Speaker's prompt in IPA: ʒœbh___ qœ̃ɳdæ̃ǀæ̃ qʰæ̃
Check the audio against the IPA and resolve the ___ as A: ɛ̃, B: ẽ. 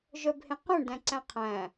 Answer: B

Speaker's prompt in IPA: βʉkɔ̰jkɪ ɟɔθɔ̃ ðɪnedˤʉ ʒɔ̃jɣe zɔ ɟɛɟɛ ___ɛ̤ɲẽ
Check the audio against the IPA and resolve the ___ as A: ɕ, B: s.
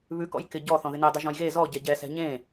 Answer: B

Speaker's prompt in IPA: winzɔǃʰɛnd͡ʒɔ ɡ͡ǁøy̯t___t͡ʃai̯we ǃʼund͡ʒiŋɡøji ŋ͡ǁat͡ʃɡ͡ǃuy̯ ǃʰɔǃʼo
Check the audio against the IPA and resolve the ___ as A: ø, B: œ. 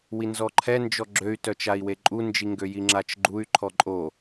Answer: B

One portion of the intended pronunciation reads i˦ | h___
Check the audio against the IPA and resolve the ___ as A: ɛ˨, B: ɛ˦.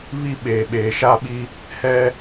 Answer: B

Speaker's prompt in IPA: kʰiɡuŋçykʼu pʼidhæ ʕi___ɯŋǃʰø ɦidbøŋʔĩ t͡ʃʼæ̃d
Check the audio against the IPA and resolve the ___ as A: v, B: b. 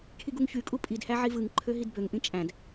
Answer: A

